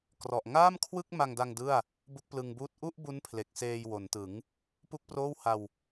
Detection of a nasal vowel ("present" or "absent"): absent